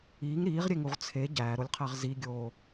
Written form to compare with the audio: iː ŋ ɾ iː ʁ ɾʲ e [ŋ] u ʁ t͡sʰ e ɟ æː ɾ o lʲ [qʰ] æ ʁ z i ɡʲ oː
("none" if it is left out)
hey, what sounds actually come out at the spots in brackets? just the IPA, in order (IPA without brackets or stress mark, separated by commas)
ŋ, qʰ